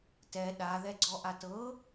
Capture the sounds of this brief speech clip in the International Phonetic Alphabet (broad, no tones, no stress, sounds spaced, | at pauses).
t ɛ ɗ a ð ɛ ɡ͡ǀ ɔ ʔ a t ɤ